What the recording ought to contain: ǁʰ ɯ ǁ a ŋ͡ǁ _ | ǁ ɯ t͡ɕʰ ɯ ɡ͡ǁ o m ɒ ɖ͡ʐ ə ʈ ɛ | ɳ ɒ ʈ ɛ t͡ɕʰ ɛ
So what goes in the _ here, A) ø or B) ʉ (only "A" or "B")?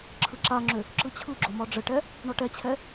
A